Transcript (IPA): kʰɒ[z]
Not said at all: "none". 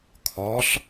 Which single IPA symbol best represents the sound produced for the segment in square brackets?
ɬ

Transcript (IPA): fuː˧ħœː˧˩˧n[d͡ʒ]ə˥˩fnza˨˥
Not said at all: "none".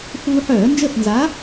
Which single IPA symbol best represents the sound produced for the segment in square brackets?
d͡ʒ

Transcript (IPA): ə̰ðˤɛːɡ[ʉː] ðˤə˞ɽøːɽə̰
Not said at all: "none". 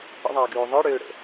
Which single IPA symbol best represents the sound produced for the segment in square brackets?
ʉː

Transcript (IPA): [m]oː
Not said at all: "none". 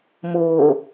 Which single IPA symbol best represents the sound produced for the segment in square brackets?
m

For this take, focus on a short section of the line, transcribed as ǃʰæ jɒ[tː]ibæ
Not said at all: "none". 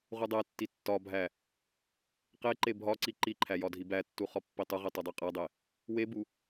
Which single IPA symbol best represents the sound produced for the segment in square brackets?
dʱ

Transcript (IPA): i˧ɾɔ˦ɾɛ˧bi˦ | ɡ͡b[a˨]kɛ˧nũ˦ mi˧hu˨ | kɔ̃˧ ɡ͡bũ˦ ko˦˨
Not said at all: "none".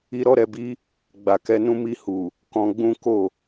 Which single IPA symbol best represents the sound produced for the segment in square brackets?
a˨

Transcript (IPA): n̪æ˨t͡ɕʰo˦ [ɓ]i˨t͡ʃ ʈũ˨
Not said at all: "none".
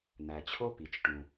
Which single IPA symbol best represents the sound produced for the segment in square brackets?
p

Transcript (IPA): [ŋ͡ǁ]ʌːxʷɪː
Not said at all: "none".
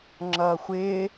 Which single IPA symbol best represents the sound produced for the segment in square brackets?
ŋ͡ǁ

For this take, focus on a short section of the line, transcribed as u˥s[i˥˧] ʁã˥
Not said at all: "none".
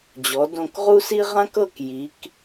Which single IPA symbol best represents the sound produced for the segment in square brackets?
i˥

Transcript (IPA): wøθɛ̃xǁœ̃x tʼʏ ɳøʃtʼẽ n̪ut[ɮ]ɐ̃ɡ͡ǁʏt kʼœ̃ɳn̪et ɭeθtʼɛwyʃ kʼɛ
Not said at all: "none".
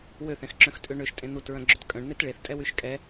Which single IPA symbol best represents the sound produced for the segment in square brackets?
ɹ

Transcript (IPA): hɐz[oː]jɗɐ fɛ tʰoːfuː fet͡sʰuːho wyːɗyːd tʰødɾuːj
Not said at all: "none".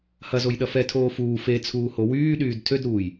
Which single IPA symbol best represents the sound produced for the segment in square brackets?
o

